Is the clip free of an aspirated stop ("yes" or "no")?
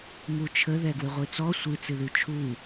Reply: no